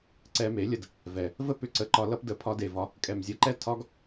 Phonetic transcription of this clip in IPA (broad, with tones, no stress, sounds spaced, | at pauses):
ǀ ɛ˧ m e˨˦ lʲ ə˧ d | v ɛ˨ | v ə˦ p ʏ˧ ǀ ə˨˦ ǃ ɒ˧ l ʌ˧ p d ə˨ pʰ ɒ˧ d e˨ v ɒ˧ | kʼ ɛ˨ m zʲ ə˨˦ ǃ ɛ˦ tʰ ɒ˦ ɡ